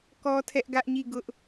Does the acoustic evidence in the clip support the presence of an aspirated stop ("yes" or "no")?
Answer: yes